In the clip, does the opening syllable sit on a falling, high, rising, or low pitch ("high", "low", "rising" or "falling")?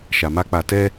low